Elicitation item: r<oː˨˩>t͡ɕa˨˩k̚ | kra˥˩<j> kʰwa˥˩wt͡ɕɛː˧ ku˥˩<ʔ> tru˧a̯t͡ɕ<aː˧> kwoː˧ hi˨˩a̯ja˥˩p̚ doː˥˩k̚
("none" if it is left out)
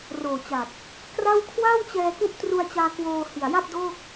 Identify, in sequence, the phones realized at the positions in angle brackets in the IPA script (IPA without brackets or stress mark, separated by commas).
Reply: oː˨˩, w, ʔ, aː˧